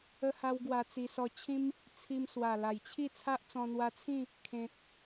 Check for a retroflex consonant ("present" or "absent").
absent